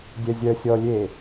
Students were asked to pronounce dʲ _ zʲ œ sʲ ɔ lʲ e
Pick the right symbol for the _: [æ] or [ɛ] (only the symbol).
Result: ɛ